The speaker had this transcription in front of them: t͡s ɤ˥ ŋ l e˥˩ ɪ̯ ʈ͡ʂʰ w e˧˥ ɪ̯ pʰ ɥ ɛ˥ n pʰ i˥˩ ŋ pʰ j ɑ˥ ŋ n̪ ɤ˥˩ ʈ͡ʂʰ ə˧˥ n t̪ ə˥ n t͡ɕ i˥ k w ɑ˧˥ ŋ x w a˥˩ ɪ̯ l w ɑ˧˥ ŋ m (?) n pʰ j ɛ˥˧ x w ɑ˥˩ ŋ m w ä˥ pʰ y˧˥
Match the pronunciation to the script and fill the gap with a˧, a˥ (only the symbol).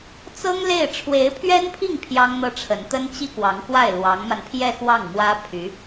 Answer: a˧